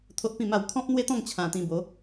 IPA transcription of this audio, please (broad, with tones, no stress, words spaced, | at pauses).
t̪ʰo˦ʔpĩ˥˧ma˥˧w kʰɔ̃˦p̚n̪we˦t̪ɔ̃˥˧ŋ t͡ɕʰã˧t̪ĩ˧ bo˨˦